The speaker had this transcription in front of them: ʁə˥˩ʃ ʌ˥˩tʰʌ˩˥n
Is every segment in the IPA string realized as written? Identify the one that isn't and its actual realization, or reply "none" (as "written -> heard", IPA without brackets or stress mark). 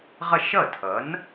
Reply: ə˥˩ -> ʌ˥˩